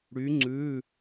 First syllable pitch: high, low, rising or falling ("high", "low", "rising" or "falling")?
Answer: rising